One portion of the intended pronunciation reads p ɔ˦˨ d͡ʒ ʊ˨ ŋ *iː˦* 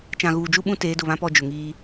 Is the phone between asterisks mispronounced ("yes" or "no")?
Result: no